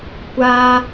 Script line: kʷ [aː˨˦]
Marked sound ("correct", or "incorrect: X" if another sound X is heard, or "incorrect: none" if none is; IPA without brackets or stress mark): incorrect: aː˦